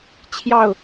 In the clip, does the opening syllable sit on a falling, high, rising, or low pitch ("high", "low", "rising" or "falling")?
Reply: falling